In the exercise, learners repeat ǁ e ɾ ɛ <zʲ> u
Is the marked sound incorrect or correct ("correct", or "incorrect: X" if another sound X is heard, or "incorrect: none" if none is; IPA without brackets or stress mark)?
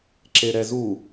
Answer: incorrect: z